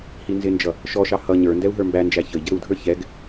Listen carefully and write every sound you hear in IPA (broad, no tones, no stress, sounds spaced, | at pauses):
h i n z ɪ n d͡ʒ ʌ | ʃ ɔ ʃ ɑ h ʌ ɲ ə˞ n d ɛ u̯ ɦ ə˞ m b æ n d͡ʒ æ ç ə i̯ ɟ ə ɾ u dʱ ə˞ ç ɛ ɡ